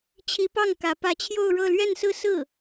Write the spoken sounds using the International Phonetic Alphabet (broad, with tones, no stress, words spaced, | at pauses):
t͡ɕʰi˧˥pɑ˥˩ŋ kä˧˥ pä˧˥t͡ɕʰjo˥˧ʊ̯ɻɤ˥˧ lɥɛ˥˧nsɹ̩˥˧sɹ̩˥˩